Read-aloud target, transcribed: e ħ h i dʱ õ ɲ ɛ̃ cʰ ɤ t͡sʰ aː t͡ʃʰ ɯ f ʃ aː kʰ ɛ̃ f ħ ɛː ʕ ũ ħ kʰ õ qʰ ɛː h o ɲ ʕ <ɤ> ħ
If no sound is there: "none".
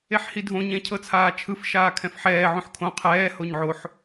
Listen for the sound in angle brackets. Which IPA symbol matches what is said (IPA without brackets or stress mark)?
o